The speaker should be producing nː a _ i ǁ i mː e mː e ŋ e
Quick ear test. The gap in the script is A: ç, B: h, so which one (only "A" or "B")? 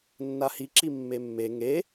B